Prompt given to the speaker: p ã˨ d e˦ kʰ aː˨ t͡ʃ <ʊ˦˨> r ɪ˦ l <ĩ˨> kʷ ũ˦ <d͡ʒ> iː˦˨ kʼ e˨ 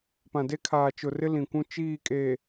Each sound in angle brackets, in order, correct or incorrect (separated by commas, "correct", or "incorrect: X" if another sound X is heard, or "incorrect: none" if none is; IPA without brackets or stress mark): incorrect: ʊ˨, correct, incorrect: t͡ʃ